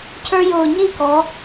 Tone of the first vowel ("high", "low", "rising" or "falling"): high